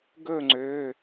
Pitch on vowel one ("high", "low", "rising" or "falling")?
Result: falling